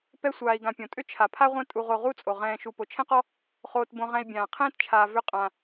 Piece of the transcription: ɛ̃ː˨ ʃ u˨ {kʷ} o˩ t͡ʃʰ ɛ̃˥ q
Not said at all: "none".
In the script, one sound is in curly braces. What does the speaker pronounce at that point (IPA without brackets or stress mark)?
p